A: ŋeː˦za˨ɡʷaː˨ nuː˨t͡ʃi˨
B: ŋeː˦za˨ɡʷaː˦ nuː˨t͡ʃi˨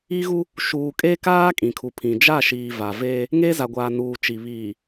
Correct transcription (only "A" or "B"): A